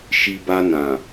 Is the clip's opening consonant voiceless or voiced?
voiceless